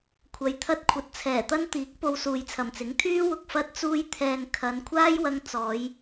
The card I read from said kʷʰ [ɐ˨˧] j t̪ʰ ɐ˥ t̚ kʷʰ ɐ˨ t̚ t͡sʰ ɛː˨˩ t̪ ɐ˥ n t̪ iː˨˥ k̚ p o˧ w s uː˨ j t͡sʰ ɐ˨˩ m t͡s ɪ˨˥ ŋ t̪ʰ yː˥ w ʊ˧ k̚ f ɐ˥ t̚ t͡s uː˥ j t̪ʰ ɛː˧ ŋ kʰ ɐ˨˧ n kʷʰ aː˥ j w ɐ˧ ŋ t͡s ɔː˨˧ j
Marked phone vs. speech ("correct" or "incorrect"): incorrect